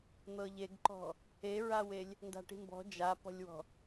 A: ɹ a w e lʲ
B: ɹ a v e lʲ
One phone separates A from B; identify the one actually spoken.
A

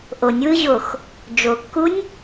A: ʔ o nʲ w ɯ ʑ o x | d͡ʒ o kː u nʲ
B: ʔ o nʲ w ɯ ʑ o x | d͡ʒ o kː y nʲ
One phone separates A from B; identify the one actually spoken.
A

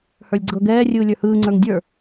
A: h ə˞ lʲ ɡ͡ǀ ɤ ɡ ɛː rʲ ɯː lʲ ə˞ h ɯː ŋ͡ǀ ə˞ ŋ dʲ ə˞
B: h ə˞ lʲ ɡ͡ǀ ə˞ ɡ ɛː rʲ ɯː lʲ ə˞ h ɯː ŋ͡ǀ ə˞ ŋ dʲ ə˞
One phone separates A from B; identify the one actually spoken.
A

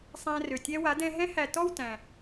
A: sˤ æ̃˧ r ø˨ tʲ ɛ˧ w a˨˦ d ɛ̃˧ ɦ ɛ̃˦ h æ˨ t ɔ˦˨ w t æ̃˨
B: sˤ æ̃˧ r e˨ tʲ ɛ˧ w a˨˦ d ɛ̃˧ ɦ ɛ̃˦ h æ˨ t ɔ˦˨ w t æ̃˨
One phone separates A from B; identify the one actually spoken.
A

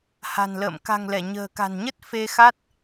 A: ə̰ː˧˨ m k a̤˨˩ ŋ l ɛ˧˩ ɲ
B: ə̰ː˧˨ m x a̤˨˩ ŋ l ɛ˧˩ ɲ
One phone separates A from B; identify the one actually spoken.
A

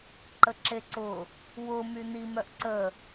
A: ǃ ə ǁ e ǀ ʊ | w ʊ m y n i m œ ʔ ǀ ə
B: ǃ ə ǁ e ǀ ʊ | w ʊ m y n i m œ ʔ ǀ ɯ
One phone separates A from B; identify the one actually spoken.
A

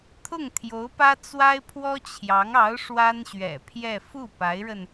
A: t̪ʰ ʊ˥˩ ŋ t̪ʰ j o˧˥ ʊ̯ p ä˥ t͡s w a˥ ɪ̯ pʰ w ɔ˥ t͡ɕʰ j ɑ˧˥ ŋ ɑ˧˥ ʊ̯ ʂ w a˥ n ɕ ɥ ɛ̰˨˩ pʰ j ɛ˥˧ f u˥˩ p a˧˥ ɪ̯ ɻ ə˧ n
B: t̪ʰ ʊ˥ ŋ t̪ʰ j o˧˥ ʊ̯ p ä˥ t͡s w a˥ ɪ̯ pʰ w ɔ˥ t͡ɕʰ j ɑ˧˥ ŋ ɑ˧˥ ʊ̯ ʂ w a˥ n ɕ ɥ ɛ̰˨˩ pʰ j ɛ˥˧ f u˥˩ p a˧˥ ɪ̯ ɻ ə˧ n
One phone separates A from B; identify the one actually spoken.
A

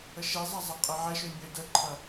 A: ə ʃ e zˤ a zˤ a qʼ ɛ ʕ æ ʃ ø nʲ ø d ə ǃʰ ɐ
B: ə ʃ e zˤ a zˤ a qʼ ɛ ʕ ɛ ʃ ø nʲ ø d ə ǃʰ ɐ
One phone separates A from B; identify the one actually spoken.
B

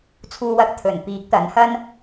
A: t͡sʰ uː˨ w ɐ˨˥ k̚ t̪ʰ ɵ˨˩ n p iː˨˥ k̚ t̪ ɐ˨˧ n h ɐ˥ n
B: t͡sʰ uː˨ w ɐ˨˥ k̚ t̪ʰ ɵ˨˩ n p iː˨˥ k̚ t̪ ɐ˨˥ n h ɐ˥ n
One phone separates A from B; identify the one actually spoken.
B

